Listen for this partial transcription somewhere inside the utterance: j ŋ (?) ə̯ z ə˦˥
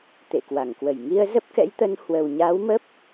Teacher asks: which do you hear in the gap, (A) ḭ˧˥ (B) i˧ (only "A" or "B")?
B